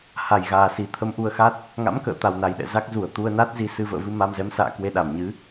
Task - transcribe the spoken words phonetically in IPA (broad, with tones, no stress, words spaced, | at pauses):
ha˨˩jɣaː˨˩si˨˩ t̪ʰə˧mʔu˧ə̯xa˦˥t̚ | ŋa̰˧˥mkə̰ː˧˨t̪a˨˩w na˨˩jɗɛ̰˧˨ za˦˥k̚zu˧˩ə̯ t̪u˧ə̯na˦˥t̚zi˧ sɨ˧ və̰ː˧˨vɨ˧ ma˧mzɛ˨˦msa̰ː˧˨ kwe˧ɗa˧˩mɲɨ˨˦